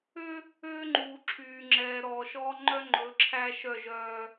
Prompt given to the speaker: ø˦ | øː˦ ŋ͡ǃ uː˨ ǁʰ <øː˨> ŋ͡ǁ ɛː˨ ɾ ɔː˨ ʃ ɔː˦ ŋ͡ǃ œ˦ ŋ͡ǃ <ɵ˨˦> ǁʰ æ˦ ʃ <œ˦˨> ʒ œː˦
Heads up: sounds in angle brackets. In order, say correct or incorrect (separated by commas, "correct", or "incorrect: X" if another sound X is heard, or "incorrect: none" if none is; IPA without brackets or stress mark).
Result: incorrect: yː˨, correct, correct